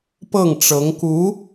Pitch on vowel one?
falling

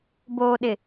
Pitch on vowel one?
low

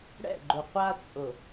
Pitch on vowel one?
falling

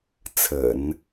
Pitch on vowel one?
low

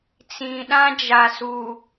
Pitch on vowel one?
low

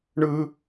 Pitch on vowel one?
high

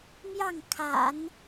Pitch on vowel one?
falling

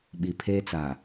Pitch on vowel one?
low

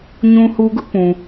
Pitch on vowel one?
high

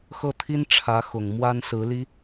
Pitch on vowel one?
falling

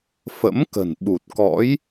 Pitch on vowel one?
rising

